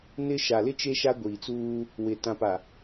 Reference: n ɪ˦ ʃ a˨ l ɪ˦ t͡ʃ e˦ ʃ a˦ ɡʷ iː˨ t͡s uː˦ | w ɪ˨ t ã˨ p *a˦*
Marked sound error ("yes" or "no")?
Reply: yes